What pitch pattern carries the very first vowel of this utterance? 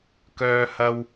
high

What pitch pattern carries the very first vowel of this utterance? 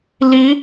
rising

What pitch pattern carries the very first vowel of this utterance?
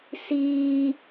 high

